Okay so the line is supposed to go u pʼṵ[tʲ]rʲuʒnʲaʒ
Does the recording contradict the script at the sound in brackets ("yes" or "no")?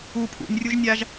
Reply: yes